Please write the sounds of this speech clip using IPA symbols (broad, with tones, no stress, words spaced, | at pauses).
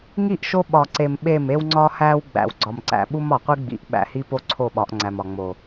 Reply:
ŋi˦˨ʔʃo˦ ɓɒ˨ǀe˨m ɓe˦˨m e˦wŋ͡ǀɒ˦hæ˦w ɡ͡bæ̰˨w ɡ͡ǀɒ˨mǀæ̰˨ɓu˦m ɒ˨qʷi˦ɡ͡bḭ˨˦ʔ ɓæ̰˨hi˦po˦ ǀʰo˦˨ɓɒ˨˦ʔŋ͡ǀæ˨m ɒ˨ŋ͡mo˨